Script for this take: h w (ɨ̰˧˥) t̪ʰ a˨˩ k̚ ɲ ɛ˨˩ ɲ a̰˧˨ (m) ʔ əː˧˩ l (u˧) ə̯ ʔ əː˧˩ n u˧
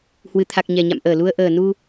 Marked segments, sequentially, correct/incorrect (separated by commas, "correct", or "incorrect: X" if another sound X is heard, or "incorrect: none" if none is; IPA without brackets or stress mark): incorrect: ɨ˨˩, correct, correct